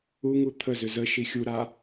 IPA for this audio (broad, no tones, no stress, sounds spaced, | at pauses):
u ŋ u t̪ʰ ə z ʏ z ə ʃ i xʲ u ɾ a